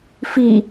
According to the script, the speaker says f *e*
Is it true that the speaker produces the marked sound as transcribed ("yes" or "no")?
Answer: no